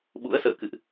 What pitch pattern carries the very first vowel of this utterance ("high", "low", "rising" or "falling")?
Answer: rising